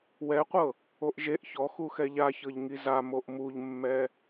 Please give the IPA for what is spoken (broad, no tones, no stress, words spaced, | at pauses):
wɛqʷɤ | oʔʒeʔ çɔ xuxɛʎaçɤʎ ŋiza moʔmuʎmːɛ